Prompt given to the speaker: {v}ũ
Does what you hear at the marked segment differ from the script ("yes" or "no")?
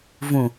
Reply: no